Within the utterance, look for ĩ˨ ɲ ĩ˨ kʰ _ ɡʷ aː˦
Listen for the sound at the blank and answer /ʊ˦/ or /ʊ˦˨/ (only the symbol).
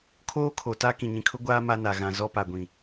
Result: ʊ˦